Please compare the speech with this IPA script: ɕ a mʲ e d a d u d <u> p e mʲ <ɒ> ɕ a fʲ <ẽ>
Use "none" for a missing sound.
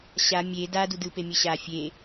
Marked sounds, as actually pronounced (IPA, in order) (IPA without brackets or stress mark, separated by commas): ɯ, ʌ, e